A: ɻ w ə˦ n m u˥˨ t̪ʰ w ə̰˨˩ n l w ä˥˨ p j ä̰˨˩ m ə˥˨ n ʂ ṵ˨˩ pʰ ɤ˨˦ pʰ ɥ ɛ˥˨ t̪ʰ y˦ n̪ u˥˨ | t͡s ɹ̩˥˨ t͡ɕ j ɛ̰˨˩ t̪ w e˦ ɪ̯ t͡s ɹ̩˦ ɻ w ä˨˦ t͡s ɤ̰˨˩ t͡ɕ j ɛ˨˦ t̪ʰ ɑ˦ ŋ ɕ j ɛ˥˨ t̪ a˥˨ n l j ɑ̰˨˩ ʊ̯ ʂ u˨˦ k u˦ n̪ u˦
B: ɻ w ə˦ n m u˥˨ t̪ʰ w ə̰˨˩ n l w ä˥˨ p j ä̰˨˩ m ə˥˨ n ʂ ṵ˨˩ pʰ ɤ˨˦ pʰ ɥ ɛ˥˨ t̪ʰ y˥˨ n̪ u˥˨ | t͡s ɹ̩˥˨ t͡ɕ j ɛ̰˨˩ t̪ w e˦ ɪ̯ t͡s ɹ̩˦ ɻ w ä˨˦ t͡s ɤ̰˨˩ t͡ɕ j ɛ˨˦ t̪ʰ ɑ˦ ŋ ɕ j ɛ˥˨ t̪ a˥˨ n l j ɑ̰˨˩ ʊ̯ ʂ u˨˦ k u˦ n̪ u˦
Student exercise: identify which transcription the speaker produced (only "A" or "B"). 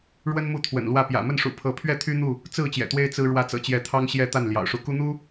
A